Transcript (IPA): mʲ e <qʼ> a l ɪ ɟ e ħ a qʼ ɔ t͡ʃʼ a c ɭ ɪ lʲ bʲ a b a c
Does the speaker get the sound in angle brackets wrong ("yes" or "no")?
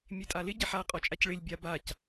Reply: yes